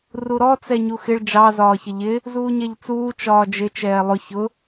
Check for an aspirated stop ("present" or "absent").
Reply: absent